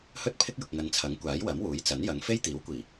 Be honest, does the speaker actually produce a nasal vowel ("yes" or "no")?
no